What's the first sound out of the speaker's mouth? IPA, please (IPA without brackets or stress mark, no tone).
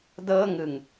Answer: d